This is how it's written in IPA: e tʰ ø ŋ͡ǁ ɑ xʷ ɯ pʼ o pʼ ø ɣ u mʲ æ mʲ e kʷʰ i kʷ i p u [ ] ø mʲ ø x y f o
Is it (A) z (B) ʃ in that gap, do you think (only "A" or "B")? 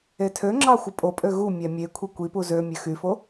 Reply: A